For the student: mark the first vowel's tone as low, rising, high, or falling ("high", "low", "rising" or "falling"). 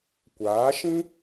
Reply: rising